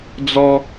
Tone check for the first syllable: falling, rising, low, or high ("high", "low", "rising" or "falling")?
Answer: high